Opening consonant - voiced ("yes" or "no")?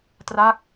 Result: no